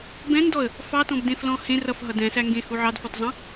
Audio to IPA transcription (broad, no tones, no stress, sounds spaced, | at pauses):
b ɛ̃ n d ɔ ə̯ | f ɑ t ɔ̃ b d ẽ f l ɔ̃ h ẽ r ʌ f ɦ ʌ d ɛ̃ s æ ŋ ɡ ẽ h u ʕ ɑ d f ɔ t zˤ ɑ̃